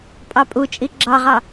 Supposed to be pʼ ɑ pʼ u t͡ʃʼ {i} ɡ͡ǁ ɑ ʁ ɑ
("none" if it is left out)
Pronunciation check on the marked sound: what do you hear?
i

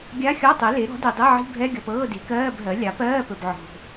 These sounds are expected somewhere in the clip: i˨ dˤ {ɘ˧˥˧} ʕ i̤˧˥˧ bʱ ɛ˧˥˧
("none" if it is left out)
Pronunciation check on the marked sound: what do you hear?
e˧˥˧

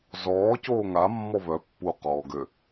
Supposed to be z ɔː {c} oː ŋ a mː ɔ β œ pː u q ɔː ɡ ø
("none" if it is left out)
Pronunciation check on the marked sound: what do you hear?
c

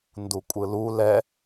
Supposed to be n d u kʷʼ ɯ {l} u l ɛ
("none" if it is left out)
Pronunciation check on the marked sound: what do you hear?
l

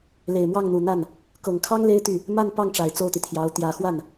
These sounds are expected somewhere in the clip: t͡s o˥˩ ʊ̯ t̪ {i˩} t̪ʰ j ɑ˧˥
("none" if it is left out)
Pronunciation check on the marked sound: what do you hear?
i˩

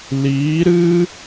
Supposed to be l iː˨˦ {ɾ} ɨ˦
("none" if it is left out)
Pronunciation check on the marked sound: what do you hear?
ɾ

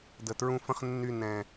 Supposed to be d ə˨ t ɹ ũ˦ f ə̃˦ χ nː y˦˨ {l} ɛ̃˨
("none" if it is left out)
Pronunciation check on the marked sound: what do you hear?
n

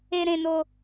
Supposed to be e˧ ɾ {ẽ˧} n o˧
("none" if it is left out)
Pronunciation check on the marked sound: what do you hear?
ẽ˧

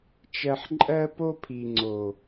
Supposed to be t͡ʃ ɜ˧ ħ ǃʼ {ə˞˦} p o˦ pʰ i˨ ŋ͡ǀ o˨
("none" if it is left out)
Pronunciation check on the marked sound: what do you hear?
ɜ˦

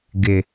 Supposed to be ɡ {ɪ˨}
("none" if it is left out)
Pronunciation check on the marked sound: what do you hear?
ɪ˨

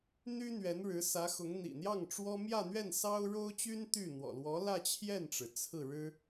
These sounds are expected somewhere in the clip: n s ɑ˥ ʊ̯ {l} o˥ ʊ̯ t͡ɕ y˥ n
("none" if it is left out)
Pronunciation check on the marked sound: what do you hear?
ɻ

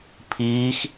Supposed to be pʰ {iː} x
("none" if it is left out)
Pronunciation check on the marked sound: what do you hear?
iː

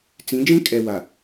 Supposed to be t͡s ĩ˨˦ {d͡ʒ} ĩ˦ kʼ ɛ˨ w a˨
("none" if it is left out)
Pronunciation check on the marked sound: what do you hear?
d͡ʒ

